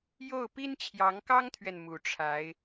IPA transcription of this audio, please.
jo˥˩ʊ̯ pi˥nt͡ɕʰjɑ˧˥ŋkɑ˥ŋt̪ʰɥɛ˨n mu˧˥ʈ͡ʂʰa˧˥ɪ̯

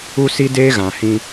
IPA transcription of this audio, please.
u˦si˦deː˦ ɣã˨hĩ˦

